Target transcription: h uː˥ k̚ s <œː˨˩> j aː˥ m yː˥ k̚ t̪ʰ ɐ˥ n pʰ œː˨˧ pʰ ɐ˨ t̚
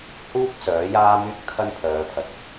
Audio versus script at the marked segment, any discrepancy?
yes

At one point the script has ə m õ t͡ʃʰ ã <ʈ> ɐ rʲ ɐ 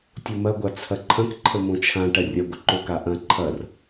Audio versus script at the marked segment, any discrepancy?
no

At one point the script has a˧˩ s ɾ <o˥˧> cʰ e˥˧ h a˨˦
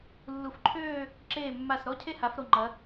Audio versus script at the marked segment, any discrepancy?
yes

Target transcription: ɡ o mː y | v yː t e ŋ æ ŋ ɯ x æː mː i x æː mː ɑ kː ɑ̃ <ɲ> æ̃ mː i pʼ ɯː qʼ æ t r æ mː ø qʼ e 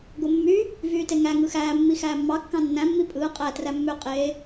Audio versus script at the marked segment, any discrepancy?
yes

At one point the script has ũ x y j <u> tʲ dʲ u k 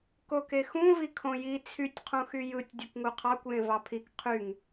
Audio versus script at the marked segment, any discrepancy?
yes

